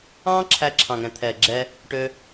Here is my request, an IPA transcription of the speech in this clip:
ɑ̃ː˦ ǁʰ æ˧ ǁʰ ɑ̃˨ ŋ ɛ̃˨ t̪ʰ ɛː˨ ɡ͡ǁ ɛː˧ | ʈ øː˧

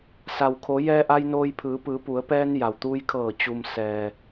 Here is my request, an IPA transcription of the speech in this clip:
s a˩ w kʰ o˩˧ j ɛː˧ ʔ a˧ j n oː˧ j pʰ ɯː˩˧ p ɯː˩˧ p u˩˧ ə̯ p ɛː˧ n j a˩ w t̪ uː˧ j kʰ ɤː˧˩ t͡ɕ u˩ m s ɛː˩

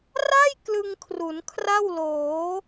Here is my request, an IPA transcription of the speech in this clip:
r a˥˩ j k l ɯ˧ ŋ kʰ r u˩˦ n kʰ r a˥˩ w l oː˩˦

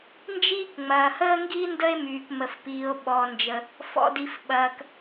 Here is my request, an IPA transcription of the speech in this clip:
n d͡ʒ iː˥ k ŋ͡m ɐː˩ h əː˥ ŋ ɡ i˥ n d ə˥ e̯ m yː˩ k m ə˩ f p iː˩ o̯ ɓ ɔ˩ n d͡ʒ ə˩ | f ɔ̰˩ d i˩ f ɓ ɐː˩ k

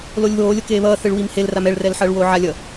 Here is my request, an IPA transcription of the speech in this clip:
l o lʲ β oː lʲ o k eː β ʌː θ ɯ ɭ w i m h e l r a m ɛ ɭ r ɛ l ħ ʌː ɭ w oː ʕ a lʲ ʌ

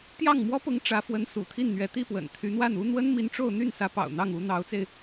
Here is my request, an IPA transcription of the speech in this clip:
t̪ j ɑ˥˩ ŋ m w ɔ˥ p ʊ˧˥ ŋ ʈ͡ʂ ä˧˥ f w ə˧˥ n s ṵ˨˩ t̪ʰ i˥˩ n n̪ ɥ ɛ˧˥ t̪ i˥˩ p w ə̰˨˩ n t̪ʰ y˧˥ n̪ w a˥˩ n u˥ n̪ w ə˥ n m i˧˥ n ʈ͡ʂ o˥˧ ʊ̯ n̪ y˥˩ n s ä˧˥ p ɑ̰˨˩ ʊ̯ n̪ ɑ˥˩ ŋ u˧˥ n̪ ɑ˧˥ ʊ̯ t͡s e˧ ɪ̯

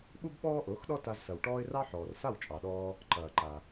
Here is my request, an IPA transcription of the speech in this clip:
ɓ u˥ b ɓ ɔː˥ ʔ ʊː˩˥ x ɗ ɔ˥ t a˧ z s ɐ˩ w ʈ ɔː˥ ɪ̯ r ɑ˥ ħ ɔː˩ r s a˥˩ w t͡ʃʼ ɑ˩ ɗ ɔː˧ | ǃ ɐː˩ ǃ a˩

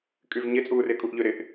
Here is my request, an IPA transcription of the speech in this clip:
kʼ y v ɲ ɪ t͡sʼ uː r ɪː kʼ u ʔ ʎ ø ɾ ɪ ʔ

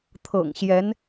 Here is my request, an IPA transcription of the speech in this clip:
t̪ʰ ɤ̰˨˩ ŋ ɕ j ɛ˧˥ n

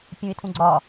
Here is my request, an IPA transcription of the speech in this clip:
pʲ ũ ɪ̯ tʰ ũ ɡ͡ǀ ɒ

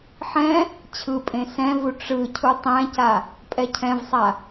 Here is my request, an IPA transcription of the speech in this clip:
ħ ɛ̃ | t͡ɕʰ ɯ pʼ ẽ s ɛ̃ v u ʈ͡ʂ ɯ cʰ u tˤ ɛ̃ c a | pʼ ɛ cʰ ɛ̃ v sˤ a

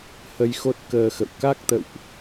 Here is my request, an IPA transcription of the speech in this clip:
h ə˧ j x o˦˥ t̚ k əː˧ x ə̰˧˨ w k a˦˥ k̚ t̪ ə̰˧˨ w ʔ

